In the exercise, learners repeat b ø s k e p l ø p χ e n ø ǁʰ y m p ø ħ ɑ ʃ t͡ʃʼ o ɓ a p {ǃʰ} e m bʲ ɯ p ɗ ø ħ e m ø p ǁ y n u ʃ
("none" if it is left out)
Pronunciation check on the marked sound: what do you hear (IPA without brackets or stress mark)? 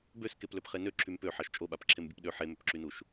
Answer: ǁʰ